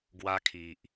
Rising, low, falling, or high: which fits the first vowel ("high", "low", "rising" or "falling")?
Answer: high